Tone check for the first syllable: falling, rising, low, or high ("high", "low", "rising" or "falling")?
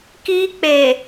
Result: high